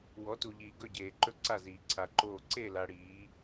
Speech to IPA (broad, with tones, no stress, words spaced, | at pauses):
wɔ˨˦tu˨ʎiː˨ɡɵ˦˨ ɟeː˨ǃɵ˦˨ǀa˦˨ ziː˨ǀʰa˨ǃoː˦˨ ǀe˦˨la˨ ɽiː˨˦